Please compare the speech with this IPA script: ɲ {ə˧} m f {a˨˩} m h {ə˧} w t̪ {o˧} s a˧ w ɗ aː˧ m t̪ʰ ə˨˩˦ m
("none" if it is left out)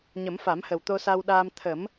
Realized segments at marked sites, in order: ə˨˩˦, a˨˩˦, ə˨˩, o˧

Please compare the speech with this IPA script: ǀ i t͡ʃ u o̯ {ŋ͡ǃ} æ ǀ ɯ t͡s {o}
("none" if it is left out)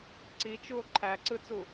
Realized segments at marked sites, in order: ǃʰ, u

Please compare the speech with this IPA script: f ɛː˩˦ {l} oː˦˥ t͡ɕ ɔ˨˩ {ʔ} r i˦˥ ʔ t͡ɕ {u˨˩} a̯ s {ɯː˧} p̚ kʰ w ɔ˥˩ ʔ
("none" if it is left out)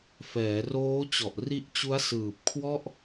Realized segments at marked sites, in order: r, ʔ, u˦˥, ɯː˨˩

